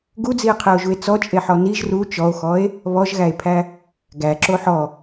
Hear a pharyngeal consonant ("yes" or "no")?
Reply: yes